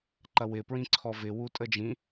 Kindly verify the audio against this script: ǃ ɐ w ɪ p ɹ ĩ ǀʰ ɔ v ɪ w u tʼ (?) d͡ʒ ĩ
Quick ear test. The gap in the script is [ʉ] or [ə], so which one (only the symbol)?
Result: ə